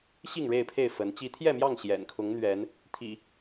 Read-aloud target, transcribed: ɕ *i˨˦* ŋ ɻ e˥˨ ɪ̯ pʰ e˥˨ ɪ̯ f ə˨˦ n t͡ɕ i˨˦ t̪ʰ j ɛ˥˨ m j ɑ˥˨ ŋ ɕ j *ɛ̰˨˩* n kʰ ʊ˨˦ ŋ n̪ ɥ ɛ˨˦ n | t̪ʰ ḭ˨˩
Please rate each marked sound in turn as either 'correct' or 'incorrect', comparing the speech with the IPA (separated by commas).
incorrect, correct